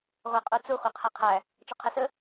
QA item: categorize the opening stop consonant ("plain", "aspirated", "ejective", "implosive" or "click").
ejective